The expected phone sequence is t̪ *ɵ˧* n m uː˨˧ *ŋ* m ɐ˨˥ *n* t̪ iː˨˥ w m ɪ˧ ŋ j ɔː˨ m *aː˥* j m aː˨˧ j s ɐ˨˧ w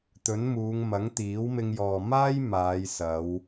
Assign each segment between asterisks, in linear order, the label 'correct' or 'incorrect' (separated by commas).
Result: incorrect, correct, incorrect, correct